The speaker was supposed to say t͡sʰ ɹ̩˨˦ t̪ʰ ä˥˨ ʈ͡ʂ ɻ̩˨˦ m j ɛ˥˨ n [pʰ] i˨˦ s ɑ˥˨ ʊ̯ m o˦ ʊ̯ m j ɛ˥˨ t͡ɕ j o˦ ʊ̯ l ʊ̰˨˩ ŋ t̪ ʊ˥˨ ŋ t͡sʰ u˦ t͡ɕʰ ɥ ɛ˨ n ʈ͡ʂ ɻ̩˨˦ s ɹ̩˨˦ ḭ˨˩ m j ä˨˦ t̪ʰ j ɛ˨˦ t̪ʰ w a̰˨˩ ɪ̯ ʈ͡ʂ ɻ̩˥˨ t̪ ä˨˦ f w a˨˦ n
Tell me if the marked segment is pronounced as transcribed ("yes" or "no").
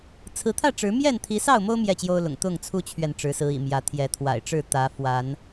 no